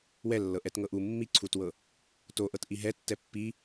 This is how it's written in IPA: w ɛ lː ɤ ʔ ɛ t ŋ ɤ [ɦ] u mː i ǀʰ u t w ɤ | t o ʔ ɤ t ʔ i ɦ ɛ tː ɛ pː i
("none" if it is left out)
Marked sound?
ʔ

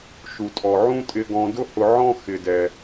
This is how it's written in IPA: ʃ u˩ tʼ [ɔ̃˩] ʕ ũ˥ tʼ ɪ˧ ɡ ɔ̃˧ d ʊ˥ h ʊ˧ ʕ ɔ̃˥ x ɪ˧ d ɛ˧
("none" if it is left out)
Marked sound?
ɔ˩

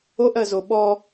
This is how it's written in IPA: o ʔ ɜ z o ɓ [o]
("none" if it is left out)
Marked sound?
ɔ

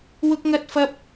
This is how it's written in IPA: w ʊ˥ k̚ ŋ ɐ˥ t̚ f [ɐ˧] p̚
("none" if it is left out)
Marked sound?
ɐ˥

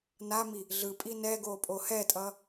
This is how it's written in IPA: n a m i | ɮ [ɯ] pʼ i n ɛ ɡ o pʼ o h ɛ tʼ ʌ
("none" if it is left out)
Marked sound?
ɯ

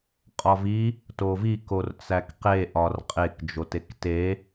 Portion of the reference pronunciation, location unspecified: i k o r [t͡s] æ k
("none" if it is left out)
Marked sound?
t͡s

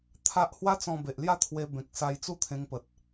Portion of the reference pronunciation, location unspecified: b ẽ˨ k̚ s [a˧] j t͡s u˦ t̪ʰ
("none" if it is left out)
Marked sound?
a˧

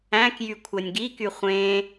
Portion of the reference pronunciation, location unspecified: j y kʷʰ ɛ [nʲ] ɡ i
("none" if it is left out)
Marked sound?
nʲ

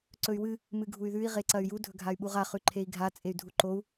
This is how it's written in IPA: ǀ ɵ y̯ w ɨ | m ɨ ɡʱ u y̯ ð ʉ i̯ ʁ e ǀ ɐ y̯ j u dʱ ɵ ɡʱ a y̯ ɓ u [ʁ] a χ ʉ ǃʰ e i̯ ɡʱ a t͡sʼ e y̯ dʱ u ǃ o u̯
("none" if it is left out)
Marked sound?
ʁ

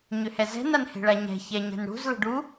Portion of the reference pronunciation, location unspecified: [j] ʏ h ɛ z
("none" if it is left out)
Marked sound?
ɲ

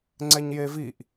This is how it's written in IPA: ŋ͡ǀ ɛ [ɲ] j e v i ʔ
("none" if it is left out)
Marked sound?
ɲ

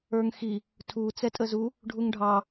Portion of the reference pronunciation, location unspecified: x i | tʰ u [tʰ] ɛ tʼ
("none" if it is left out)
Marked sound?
t͡s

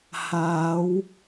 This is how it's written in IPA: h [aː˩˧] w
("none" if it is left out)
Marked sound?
aː˩˧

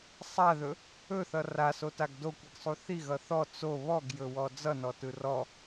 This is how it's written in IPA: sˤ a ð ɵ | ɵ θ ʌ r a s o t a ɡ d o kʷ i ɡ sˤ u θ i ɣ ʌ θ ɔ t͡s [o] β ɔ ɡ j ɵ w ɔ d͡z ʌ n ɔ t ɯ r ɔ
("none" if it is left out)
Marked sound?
o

